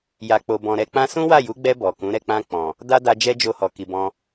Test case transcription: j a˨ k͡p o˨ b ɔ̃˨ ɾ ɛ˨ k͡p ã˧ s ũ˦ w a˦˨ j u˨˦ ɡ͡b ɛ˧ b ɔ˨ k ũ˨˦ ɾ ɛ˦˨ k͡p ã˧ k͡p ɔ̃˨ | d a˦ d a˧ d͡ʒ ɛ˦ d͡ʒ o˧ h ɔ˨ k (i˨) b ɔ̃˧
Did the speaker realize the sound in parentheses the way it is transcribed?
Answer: yes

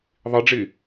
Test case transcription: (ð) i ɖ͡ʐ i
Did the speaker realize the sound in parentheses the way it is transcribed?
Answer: no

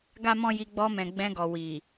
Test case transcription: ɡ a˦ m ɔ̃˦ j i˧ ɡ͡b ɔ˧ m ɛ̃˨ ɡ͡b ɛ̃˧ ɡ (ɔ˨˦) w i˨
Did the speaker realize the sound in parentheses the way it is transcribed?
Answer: no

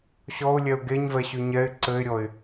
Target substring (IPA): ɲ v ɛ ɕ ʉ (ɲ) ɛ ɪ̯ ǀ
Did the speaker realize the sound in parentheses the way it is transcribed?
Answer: yes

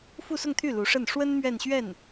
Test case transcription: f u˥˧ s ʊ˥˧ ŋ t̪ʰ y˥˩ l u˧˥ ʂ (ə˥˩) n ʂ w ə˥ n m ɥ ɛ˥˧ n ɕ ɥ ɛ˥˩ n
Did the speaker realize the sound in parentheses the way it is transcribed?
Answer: yes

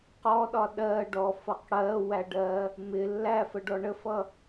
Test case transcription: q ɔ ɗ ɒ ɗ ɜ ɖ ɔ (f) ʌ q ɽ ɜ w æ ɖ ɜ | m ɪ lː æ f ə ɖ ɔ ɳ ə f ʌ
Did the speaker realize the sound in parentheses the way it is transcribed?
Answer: yes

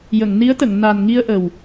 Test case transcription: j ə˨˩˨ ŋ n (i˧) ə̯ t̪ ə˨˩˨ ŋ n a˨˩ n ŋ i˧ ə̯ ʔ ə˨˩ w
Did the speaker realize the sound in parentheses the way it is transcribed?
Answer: no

